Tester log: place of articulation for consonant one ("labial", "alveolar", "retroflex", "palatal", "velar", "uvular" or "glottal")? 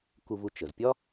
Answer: velar